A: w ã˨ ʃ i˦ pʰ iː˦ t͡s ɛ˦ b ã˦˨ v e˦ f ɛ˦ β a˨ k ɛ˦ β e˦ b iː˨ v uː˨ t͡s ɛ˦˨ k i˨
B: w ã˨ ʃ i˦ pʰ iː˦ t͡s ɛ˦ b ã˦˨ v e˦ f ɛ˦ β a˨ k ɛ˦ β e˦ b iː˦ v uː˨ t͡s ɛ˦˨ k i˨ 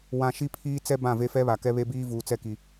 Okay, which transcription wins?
B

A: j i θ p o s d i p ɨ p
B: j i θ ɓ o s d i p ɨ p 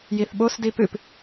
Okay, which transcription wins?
B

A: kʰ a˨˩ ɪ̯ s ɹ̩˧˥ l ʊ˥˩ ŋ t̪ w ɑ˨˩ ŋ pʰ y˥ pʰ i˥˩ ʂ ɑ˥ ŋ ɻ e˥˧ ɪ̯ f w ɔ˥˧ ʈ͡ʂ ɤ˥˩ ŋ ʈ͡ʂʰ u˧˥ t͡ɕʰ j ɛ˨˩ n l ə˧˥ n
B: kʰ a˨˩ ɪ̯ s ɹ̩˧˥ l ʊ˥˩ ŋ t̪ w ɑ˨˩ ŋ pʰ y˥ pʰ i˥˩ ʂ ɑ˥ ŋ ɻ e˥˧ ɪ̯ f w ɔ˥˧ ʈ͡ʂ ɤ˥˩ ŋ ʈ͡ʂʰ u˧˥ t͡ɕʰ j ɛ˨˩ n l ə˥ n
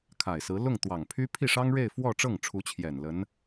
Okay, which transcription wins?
A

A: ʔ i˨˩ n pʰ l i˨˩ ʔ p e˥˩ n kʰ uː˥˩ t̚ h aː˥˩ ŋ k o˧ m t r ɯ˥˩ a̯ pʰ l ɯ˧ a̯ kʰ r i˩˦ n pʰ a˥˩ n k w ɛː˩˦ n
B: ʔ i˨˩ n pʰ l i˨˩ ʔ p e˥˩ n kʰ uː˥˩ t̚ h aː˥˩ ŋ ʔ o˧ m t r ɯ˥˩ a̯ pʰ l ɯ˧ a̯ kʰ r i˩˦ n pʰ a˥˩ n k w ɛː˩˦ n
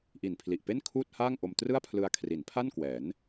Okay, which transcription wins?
B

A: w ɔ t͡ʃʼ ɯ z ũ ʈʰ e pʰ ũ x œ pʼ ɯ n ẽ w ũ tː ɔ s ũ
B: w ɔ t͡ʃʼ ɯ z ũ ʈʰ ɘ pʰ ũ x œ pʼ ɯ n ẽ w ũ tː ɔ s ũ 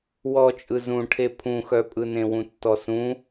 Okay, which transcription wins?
A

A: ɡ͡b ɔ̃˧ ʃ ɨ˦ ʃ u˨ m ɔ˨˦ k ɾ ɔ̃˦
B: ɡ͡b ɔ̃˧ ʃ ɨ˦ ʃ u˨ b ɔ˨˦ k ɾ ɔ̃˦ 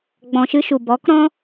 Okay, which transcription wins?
B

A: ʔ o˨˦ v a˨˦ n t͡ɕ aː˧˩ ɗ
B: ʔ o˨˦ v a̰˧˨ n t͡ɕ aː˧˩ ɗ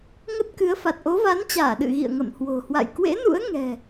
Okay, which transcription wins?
A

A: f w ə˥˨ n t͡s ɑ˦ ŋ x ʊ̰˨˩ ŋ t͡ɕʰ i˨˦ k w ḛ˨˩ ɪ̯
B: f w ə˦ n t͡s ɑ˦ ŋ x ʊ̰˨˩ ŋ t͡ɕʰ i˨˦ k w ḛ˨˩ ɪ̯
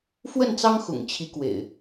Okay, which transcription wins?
A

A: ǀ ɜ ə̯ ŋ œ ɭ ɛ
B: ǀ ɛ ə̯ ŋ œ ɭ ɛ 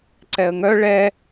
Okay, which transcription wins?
B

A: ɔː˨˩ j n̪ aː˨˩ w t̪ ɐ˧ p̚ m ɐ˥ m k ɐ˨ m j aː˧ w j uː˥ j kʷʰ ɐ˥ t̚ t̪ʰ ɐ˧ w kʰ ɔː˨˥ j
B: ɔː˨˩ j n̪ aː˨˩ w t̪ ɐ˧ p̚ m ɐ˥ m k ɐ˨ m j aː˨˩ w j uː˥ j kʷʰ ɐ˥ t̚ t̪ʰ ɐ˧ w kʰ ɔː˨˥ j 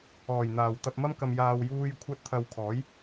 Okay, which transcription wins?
A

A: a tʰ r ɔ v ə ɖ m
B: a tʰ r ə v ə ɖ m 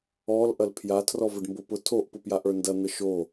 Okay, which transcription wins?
A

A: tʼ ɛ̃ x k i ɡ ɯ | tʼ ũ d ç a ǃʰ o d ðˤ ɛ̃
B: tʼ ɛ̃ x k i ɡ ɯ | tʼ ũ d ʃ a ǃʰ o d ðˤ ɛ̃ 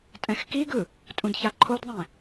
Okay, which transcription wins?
A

